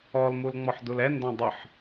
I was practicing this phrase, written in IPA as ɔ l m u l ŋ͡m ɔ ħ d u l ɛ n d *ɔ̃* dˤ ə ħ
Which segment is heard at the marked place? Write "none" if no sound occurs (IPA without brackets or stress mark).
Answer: ɔ̃